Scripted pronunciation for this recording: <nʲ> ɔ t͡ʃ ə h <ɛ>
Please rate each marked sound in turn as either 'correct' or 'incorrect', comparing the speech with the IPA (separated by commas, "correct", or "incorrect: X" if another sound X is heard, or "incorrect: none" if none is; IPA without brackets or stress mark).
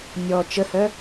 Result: correct, incorrect: œ